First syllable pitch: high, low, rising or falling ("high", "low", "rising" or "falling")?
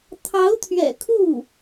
rising